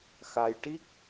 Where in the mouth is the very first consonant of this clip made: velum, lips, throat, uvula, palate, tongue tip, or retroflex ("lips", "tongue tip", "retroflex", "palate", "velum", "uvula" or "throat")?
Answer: velum